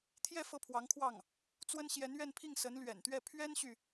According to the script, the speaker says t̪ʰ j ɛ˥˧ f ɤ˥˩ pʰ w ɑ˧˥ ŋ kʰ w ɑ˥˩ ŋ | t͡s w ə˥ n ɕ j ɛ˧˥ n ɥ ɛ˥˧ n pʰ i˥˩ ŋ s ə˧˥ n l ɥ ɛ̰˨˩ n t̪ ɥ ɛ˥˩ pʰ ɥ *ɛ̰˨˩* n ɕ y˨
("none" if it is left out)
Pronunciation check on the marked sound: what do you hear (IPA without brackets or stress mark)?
ɛ˥